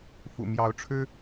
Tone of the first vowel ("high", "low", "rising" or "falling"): low